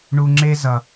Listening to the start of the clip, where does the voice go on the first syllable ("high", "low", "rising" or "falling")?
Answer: high